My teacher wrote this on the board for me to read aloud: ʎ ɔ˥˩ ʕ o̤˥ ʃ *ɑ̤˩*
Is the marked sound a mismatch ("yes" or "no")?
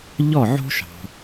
no